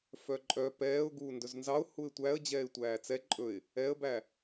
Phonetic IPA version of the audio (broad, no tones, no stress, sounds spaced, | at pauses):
f œ ǃʼ œ p ɛː ʊ̯ ɡ uː n d ɵ z n z ɑ ʊ̯ h u ɪ̯ tʷ æ ə̯ d͡ʑ ɛː ɪ̯ tʷ æː t͡s ɛ ǃʼ ɵ ɪ̯ | ɛ ə̯ b æ